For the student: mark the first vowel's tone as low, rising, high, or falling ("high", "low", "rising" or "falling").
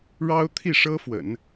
high